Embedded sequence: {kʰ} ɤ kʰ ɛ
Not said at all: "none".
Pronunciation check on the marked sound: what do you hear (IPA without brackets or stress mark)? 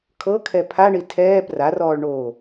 kʰ